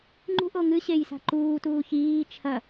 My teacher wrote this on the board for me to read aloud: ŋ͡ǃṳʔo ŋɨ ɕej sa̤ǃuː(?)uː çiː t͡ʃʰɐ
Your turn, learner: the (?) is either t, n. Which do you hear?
t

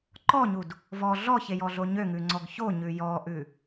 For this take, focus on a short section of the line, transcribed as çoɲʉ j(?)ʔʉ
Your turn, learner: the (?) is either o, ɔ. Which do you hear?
ɔ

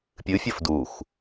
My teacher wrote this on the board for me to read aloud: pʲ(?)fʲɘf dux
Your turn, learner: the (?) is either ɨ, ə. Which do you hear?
ɨ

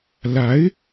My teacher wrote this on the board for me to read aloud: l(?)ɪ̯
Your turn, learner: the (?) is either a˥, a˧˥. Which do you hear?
a˧˥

